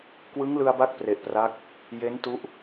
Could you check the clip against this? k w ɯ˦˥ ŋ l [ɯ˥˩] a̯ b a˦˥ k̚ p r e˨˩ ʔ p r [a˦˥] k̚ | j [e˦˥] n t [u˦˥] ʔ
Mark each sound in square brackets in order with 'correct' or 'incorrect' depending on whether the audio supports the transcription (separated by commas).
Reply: incorrect, correct, correct, correct